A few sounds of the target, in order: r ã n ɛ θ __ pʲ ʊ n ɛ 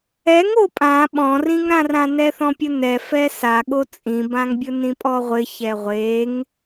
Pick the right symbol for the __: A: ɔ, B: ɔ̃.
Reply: B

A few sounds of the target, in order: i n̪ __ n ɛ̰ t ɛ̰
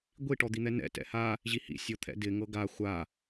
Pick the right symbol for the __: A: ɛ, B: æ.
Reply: A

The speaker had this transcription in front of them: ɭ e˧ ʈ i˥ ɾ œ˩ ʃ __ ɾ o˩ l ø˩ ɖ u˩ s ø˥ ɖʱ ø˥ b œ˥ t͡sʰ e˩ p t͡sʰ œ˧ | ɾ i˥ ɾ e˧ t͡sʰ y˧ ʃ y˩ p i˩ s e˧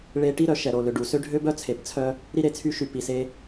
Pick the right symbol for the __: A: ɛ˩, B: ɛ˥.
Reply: A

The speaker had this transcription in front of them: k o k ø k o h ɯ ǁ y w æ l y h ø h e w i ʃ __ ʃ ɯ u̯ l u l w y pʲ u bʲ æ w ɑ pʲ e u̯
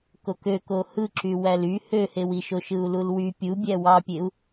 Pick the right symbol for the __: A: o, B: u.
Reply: A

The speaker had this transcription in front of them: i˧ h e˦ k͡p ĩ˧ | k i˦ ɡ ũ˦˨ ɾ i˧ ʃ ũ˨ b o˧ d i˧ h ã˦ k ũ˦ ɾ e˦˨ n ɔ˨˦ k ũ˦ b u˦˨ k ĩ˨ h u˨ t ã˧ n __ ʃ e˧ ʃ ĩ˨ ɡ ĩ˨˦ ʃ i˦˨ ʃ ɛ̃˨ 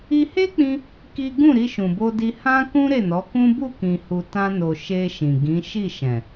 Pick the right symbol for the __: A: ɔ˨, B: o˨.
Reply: B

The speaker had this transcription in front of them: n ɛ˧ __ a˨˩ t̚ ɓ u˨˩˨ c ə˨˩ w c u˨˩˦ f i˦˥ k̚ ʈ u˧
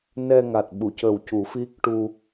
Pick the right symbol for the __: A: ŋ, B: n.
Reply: A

